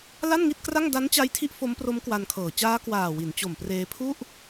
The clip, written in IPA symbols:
la˥˩nŋi˥˩t̚kra˥˩ŋ da˦˥nt͡ɕa˦˥jtʰi˦˥ʔ fo˦˥mpro˦˥mkwa˧nkʰɤː˨˩ t͡ɕaː˦˥ kwaː˨˩ wi˩˦n t͡ɕo˨˩mpreː˧pʰu˥˩ʔ

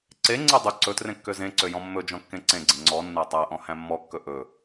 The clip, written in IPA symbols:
ǀeŋ͡ǀe dˤɵ ǀɵtrẽ kːøzẽǀø jɔ̃mːɵd͡ʒɔ̃ kːẽǀẽɡ͡ǀẽ ŋ͡ǀɔnːæ tˤæʔɔ̃ hæ̃mːɔkːɵ ʔɵ

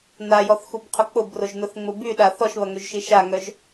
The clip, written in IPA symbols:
najɔθxubqʰʊ k͡pʊbrʊʒnʊθŋ͡mʊ byɗa θɔʃβɐŋøʒʃi ʃaŋœʒ

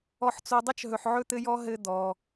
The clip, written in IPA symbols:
ɔ˨ħt͡so˨dˤɘ˥t͡ʃɦɵ˨ħ ʕɵ˥t̪ɘ˥jɔ˥ ɦɘ˦ d̪ɔ˩

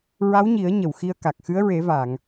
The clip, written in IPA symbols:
ɹa˧˥wɲi˨˩˦ə̯ ɲə˨˩˨w xi˧ə̯ka˨˩k̚ xɨ˧˥ə̯ɹe˨˩˦va˨˩˨ŋ

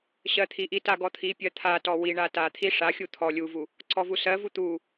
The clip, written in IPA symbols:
ɕɜt̪ʰiʔita ɡɔt̪ʰipʲɜ t̪ʰatɔ wiɳa tat̪ʰi ʂaxʲu t̪ʰɔ lʲuvu | ǀɔvusɜvu t̪u

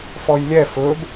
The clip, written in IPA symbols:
fɔjlʲɛ fɵb

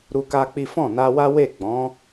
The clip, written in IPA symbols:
ɾu˦ka˦k͡pi˦ fɔ̃˦˨na˧wa˦ we˦˨ ɡ͡bɔ̃˨˦

